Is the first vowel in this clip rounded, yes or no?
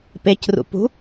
no